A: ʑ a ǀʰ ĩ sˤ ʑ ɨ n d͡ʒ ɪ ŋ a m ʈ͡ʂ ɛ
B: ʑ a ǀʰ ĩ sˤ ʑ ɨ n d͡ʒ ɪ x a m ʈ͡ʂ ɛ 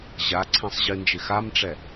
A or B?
B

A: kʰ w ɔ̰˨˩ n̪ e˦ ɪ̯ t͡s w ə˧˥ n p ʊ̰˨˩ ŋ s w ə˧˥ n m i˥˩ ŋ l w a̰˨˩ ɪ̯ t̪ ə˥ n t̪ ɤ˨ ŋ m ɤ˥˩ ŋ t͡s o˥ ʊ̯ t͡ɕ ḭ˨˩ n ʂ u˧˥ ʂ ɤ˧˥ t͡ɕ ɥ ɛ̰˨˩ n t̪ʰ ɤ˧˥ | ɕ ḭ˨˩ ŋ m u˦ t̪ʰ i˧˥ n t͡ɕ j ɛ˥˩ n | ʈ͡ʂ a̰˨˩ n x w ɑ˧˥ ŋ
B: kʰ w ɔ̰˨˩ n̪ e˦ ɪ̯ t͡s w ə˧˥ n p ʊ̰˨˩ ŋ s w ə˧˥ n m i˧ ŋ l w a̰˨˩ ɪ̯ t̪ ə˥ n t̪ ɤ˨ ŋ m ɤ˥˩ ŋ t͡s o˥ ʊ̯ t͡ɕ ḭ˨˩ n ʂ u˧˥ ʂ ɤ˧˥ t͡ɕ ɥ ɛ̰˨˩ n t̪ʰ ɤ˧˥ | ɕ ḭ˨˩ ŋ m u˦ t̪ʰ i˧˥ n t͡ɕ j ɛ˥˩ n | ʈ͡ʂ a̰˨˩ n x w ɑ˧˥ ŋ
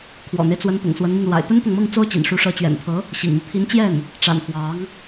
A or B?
B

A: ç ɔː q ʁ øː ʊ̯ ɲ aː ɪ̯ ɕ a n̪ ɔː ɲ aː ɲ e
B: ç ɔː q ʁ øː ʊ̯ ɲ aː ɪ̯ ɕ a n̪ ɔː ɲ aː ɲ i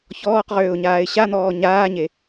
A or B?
A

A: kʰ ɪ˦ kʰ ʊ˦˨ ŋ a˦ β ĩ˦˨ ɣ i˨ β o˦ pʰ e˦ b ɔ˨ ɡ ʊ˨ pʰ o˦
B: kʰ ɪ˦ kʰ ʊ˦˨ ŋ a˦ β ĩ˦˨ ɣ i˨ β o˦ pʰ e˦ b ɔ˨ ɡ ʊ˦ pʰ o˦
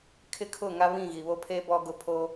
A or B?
A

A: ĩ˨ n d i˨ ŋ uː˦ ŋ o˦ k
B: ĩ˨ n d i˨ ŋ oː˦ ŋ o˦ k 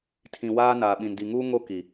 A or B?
A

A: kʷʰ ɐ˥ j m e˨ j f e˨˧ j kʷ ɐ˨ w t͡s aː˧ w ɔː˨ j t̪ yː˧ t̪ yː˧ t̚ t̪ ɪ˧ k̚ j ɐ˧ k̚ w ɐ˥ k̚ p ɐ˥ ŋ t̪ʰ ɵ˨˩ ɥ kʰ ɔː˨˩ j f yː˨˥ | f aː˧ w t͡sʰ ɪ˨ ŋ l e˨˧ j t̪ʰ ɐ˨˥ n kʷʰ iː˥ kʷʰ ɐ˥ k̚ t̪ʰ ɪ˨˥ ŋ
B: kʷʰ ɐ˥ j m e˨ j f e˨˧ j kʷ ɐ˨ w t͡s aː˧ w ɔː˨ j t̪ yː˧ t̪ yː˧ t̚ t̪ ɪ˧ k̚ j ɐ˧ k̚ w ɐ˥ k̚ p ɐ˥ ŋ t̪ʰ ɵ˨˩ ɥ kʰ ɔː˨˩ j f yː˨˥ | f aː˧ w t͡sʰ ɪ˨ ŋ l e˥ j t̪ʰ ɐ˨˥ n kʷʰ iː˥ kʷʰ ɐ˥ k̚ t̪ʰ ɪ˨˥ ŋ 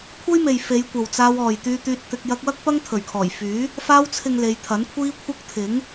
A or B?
A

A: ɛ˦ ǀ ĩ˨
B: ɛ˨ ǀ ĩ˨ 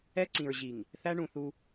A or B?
A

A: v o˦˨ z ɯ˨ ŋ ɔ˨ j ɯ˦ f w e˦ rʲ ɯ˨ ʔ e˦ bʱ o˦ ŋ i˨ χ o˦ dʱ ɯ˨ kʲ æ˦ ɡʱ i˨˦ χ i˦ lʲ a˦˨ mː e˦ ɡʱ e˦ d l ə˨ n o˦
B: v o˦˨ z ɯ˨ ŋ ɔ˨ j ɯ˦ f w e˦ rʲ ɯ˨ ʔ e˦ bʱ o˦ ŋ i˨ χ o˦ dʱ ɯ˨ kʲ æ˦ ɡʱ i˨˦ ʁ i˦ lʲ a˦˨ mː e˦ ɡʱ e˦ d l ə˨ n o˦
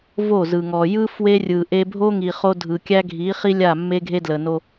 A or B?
A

